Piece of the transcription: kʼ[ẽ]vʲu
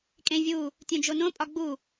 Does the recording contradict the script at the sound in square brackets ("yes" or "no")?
no